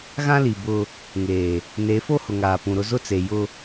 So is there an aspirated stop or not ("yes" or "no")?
no